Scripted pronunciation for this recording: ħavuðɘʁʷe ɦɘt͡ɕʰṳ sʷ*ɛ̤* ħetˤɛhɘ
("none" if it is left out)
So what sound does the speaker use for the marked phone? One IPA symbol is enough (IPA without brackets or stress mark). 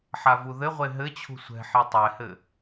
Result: ɛ̤